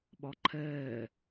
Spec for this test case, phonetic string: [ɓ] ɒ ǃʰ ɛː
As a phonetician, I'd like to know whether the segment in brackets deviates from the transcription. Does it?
no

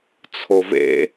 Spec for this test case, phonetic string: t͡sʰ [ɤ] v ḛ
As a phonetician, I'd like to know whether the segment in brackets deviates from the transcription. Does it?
yes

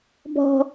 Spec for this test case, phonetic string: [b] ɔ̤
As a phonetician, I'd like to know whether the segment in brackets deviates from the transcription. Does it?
no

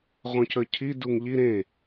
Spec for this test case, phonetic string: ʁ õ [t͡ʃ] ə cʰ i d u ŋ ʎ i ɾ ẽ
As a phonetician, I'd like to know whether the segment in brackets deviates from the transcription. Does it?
yes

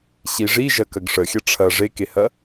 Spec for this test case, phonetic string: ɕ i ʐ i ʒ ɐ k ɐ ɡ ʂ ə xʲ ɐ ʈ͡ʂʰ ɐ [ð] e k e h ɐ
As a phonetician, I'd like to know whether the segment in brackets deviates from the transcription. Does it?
yes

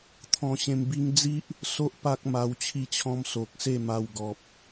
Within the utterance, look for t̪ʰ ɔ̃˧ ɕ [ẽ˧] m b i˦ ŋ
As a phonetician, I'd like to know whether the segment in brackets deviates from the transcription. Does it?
no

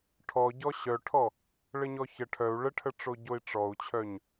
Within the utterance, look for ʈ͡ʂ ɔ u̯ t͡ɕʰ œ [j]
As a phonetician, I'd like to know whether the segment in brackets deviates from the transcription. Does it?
yes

